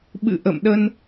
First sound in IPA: ɓ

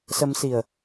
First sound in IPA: s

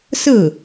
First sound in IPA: s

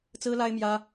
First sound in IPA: t͡s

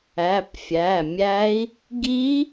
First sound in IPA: æ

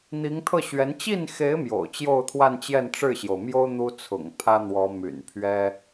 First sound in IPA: n̪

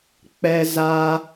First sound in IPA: k͡p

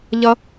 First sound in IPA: ʎ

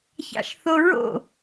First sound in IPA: ç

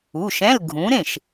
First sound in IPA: u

